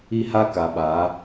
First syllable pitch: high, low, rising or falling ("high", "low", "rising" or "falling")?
high